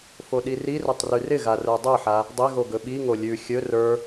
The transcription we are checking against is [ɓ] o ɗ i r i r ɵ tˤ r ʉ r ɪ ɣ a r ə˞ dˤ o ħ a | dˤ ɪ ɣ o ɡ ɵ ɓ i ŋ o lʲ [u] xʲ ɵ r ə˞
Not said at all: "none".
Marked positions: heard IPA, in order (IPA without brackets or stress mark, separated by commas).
f, ʉ